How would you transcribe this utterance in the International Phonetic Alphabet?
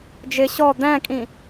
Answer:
d͡ʒ ɪ ɕ ɔ d̪ æ̃ kʼ ĩ

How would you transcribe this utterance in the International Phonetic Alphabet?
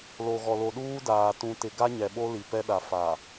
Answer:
l o˨ ɣ ɔ˨ l o˨ ɗ uː˦ d aː˨ t ũ˨ t ɪ˨ ɡ a˦ ɲ ɛ˨ ɓ o˦ l i˨ p ɛ˦ ɗ a˨ f a˨

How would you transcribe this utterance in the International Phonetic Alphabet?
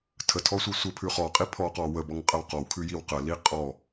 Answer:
tʰ ə tʰ ɔ sʷ i sʷ ə pʰ ʉ χ ɔ qʼ i pʰ ɔ q ɔ w ə b ɔ ŋ qʼ ə w q ɔ w kʰ ʉ j i w q ə l i qʼ ɔ

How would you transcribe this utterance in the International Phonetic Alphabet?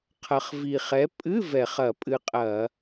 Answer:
qʰ ɐ˨˩ χ v i˨˩ χ ɛ˨˥ pʼ ɨ˧˥˧ v ɛ˧˩˧ χ ɐ˧˩˧ pʼ ɨ˧ qʼ ɐ˧˩˧

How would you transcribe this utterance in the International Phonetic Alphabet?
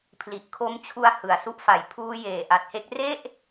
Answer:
pʰ l i˨˩ ʔ kʰ o˧ m t͡ɕʰ u˧ a̯ h ɯ˨˩ a̯ s u˦˥ ʔ f a˨˩ j pʰ uː˧ j eː˨˩ ʔ a˨˩ t̚ h e˦˥ k̚ r e˥˩ ʔ

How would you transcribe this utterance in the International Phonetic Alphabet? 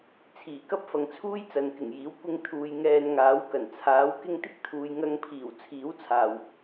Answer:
t͡sʰ iː˨˩ k ɐ˥ p̚ f ɐ˨ ŋ t͡sʰ uː˥ j t͡s ɐ˨ n k ɪ˨˩ ŋ j iː˨˥ w kʷ ɪ˧ ŋ t̪ʰ uː˨ j ŋ ɛː˧ n ŋ aː˨˥ w k ɐ˨˩ n t͡sʰ aː˨˥ w k ɪ˥ ŋ t̪ ɪ˥ k̚ t̪ʰ uː˨ j ŋ ɐ˧ ŋ pʰ iː˨˩ w t͡sʰ iː˨˥ w t͡sʰ aː˨˩ w

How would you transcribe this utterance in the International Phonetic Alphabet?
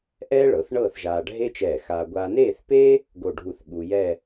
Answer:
ʔ ɛː˥ ɭ ɤ˩˧ θ ɳ ɤː˥˧ θ ʒ aː˧ ɖʱ e˥ t͡ʃ ɛː˧˩ x aː˧ ɡʷ aː˧ n eː˥˧ θ p e˥ | ɡ o˥˧ ɖʱ u˥˧ θ ɠ u˧ j ɛ˥˧

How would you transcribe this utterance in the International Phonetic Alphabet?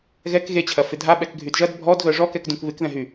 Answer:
ɣ ɛ k ɣ e t͡ɕʰ ɐ f ɪ dʱ a ɓ ɛ k ɡʱ y d ʒ ɐ d bʱ ɔ d ɣ œ ʐ ɔ k ɛ k d ũ k β ɪ k ð ɛ̃ ɦ y

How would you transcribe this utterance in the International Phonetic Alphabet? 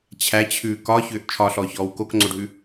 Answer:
t͡ɕʰ æ t͡ɕʰ ʉː k ɒ ç ʏː ʔ t͡ʃʰ ɒ ɬ ɔː ç ɔː w k o k ŋ͡ǀ o ɖʱ ʉ

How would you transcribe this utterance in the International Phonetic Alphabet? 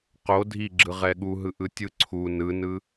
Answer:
q o dʱ i ɡ͡ǁ ɯ ʁ ɛ ɠ u ɦ ɯ ʔ ɯ tʲ ɯ ǀʰ u n ɯ n ɯ

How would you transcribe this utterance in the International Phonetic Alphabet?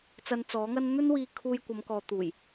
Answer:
t͡s ɐ˧ n t͡s ɔː˨˥ ŋ ɐ˥ n n̪ ɵ˥ n w iː˧ kʰ uː˧ j kʷ ɐ˨˧ m k ɔː˨ t̪ uː˨˩ j

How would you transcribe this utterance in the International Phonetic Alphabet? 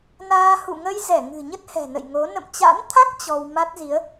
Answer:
n aː˧ h ṵ˧˨ ŋ ə˧ j z ɛ˧˩ ŋ ɨ̤˨˩ ɲ ə˦˥ t̚ h ɛ̤˨˩ n ə̰˧˨ j ŋ o˨˦ n ə̰˧˨ m t͡ɕ a̰˧˥ n t̪ʰ a˦˥ k̚ t͡ɕ ɔ˧ w m a˦˥ t̚ z i˨˦ ə̯

